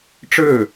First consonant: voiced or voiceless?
voiceless